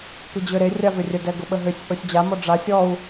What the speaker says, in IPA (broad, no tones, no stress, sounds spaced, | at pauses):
p i d͡ʑ ʏ ɾ e rʲ a v ʏ rʲ ə d ɛ ɡ ʊ ɓ ə ɦ ʏ sʲ ʔ ʊ sʲ d͡ʑ a m ɔ ɖ͡ʐ a sʲ ɔ u̯